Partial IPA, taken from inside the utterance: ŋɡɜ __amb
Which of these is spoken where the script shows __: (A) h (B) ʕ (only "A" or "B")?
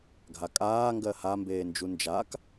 A